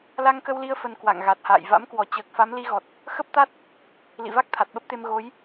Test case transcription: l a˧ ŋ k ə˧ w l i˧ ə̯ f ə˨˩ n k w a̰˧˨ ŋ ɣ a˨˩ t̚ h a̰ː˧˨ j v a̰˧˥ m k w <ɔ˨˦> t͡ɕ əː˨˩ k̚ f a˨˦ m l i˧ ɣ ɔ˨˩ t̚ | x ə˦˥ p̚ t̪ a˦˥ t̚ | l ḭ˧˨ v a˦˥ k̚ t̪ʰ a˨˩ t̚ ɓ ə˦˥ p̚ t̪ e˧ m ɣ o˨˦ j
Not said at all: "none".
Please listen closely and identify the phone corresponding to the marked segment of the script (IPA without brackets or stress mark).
ɔ˧˩